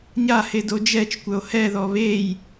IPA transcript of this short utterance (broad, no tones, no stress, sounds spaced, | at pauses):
ɲ a h e d o d͡ʒ ɛ t͡ʃ kʷ œ o̯ h ɛ ð ɔ β e j